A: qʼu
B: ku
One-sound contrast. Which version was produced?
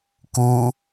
B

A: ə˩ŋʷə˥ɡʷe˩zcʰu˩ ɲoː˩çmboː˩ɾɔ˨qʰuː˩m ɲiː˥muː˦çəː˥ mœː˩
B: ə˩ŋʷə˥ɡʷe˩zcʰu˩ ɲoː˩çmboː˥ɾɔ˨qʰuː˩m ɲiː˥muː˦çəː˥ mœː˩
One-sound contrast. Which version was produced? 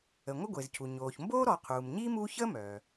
B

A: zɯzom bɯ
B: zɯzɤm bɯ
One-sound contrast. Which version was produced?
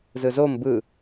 A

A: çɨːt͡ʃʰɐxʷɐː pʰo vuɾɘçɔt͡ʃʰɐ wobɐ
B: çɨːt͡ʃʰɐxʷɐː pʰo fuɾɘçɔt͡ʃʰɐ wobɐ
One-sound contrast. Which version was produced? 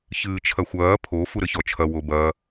B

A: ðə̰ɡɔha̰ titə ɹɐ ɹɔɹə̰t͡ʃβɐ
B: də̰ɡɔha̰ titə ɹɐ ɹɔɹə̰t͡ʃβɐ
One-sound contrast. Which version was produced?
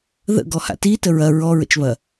A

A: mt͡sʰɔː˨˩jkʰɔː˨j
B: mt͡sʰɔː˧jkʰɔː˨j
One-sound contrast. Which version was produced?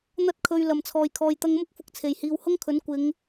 A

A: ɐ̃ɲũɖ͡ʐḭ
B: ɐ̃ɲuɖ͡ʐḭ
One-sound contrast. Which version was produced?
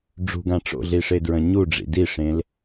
B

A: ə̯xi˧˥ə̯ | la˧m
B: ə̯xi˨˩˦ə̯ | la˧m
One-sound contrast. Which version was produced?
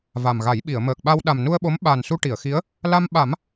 A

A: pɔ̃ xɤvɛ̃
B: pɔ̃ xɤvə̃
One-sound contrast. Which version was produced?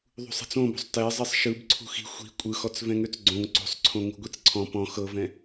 A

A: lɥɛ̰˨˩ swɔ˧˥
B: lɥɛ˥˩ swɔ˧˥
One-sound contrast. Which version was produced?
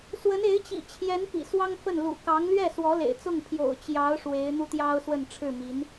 B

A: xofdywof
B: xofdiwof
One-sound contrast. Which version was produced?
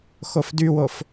A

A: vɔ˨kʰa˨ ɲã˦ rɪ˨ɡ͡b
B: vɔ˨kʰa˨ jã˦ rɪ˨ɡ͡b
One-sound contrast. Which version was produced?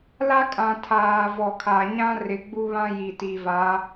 A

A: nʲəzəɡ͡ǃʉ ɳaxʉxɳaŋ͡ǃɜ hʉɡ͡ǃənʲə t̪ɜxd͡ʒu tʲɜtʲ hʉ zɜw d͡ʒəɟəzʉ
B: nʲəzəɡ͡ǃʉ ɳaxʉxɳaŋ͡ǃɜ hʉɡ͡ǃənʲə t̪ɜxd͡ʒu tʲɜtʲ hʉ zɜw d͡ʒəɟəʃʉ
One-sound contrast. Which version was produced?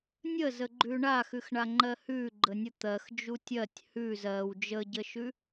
B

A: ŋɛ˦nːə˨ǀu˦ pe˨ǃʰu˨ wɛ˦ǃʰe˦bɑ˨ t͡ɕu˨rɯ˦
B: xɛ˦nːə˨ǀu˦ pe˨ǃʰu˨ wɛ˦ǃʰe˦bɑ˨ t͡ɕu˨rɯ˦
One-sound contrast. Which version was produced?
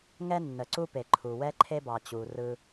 A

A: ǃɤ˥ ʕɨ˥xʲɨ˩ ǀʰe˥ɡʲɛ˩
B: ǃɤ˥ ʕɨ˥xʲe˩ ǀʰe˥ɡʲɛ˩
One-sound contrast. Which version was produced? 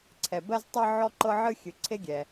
A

